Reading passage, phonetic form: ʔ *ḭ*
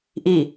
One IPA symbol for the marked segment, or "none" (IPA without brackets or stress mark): i